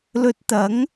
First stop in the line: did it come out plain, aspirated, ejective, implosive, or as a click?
plain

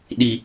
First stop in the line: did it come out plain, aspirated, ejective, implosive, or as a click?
implosive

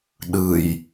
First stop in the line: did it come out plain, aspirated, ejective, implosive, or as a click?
implosive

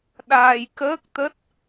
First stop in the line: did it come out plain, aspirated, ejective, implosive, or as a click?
implosive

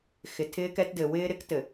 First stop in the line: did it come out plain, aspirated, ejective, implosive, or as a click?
aspirated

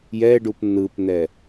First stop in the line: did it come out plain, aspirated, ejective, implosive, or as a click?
plain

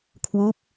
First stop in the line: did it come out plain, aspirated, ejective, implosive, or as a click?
aspirated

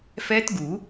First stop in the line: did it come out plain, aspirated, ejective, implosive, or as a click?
plain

